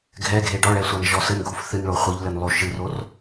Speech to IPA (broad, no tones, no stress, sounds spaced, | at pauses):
ɡʱ ɛ ɡʱ e ɖ ɔ ɭ ɛ sʷ a n ʒ ɔ s ɘ n ɡʱ u f θ ɨ n ɭ o χʷ ɨ ʎ l ɘ n lˠ o ʃ ɨ r o r